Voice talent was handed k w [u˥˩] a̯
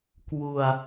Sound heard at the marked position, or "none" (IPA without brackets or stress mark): u˧